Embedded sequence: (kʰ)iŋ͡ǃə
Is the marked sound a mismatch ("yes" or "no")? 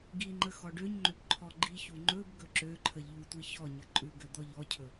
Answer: yes